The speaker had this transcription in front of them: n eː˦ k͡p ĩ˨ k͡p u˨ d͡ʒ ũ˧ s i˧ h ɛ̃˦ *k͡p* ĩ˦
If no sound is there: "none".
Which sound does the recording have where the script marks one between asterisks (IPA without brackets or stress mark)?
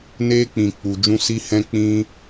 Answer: k͡p